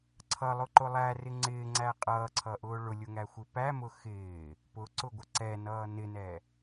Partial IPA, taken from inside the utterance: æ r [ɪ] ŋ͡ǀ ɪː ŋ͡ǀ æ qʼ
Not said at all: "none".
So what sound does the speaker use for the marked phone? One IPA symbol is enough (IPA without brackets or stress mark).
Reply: ɪ